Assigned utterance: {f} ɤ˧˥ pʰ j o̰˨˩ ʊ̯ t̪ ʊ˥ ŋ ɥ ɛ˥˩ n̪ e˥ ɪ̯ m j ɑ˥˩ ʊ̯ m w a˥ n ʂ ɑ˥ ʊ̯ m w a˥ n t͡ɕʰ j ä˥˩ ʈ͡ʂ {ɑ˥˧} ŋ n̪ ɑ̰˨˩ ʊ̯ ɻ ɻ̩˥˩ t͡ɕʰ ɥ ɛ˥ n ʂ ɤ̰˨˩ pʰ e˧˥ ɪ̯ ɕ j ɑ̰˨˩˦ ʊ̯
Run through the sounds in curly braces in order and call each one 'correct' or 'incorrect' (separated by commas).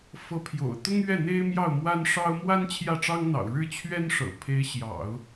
correct, incorrect